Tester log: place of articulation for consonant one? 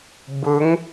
labial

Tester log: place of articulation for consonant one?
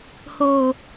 glottal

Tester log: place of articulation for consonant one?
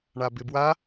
retroflex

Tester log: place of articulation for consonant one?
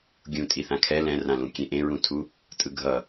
velar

